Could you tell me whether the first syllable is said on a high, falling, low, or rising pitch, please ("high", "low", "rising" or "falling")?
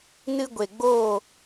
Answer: high